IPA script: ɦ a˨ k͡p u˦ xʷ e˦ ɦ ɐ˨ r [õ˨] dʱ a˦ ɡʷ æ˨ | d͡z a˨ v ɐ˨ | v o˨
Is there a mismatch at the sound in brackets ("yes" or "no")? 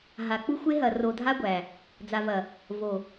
yes